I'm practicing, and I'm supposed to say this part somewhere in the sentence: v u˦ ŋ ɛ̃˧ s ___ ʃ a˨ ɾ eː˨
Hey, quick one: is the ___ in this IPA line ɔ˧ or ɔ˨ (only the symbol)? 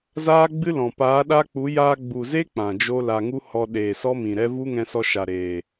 ɔ˧